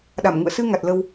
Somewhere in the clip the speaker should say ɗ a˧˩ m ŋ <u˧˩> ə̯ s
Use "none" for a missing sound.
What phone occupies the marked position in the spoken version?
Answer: ṵ˧˨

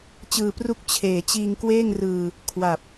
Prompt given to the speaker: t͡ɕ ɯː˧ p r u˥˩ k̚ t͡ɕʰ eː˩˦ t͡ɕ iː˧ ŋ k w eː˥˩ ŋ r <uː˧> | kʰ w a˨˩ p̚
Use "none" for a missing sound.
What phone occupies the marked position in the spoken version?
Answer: ɯː˧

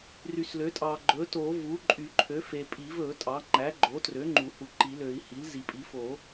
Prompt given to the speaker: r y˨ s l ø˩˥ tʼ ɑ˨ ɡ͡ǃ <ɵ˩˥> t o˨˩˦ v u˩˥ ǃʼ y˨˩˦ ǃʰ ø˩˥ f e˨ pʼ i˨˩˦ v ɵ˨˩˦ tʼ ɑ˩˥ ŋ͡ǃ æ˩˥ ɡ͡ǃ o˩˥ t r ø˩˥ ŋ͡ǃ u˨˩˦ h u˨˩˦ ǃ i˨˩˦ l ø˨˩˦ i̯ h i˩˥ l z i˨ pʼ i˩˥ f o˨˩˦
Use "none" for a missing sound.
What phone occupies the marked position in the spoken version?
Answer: ɵ˩˥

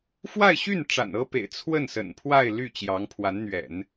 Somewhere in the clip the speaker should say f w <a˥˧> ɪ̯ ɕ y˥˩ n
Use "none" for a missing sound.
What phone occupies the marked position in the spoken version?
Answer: a˥˧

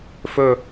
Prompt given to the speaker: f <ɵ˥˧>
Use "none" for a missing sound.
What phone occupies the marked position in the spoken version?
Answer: ɵ˥˧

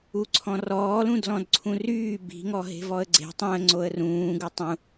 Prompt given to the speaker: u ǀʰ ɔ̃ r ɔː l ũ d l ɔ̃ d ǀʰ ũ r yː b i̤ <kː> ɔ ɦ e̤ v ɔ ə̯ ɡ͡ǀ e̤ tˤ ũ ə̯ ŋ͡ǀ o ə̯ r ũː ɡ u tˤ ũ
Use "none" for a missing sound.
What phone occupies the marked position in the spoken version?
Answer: ŋ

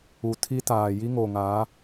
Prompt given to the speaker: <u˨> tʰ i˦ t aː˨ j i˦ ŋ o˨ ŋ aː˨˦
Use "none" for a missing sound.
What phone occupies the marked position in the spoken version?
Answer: u˨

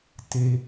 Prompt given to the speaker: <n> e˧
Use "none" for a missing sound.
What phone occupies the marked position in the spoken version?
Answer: t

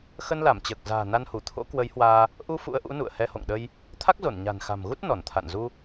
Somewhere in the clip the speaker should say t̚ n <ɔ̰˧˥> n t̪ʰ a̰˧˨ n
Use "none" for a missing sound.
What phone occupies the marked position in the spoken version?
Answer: ɔ˧˩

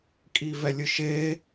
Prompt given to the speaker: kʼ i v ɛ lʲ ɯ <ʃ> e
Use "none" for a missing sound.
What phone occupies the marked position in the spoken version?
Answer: ʃ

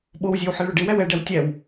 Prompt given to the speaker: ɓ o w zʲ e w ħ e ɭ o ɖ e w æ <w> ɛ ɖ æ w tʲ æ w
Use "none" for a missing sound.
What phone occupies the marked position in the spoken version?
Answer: w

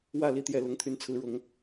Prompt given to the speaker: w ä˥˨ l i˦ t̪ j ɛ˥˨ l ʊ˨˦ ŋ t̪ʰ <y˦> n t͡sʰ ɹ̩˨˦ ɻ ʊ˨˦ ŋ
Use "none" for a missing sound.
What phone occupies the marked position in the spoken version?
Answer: y˨˦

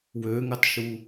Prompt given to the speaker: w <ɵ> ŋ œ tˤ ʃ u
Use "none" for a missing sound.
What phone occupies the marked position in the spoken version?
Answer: ø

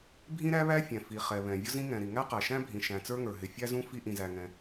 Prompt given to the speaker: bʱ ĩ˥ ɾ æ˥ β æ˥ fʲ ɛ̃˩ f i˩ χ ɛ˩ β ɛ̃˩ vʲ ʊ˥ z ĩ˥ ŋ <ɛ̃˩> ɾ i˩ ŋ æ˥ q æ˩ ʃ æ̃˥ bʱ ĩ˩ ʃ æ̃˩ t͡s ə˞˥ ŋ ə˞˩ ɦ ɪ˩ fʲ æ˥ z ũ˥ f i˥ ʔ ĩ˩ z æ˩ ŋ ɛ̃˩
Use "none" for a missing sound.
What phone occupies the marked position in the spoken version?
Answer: ɛ̃˩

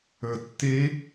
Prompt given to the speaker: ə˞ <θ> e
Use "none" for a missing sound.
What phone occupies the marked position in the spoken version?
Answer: tː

